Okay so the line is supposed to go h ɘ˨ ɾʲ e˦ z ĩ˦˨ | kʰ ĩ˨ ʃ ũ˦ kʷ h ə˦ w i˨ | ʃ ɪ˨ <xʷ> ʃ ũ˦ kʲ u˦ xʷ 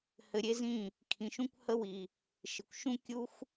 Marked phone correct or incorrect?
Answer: incorrect